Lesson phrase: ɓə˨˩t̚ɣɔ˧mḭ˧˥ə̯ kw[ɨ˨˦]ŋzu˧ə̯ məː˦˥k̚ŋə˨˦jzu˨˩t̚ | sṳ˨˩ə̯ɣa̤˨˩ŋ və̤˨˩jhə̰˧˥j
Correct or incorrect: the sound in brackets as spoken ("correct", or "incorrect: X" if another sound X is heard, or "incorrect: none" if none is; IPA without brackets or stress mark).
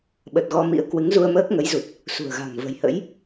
correct